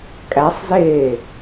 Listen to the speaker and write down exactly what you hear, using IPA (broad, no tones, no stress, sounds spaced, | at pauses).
kʼ æ sˤ z eː